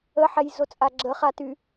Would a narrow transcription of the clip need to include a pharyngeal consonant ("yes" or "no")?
yes